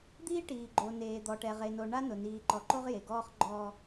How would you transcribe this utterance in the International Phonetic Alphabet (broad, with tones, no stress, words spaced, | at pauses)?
d̪iː˦ ʈiː˨ɡ͡ǃo˨neː˨d̪ɔ˨ ʈɛ˨ʁe˨no˨ ɳa˦nʊ˨ niː˨ǃɔ˨ǃo˦ʁ je˨ɡɔː˦χ ɡ͡ǃɔ˨